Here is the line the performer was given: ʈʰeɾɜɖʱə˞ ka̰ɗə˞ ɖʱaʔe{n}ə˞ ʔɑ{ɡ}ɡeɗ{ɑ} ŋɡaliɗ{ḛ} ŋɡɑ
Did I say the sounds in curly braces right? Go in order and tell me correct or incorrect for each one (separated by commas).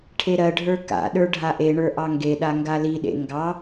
incorrect, incorrect, incorrect, correct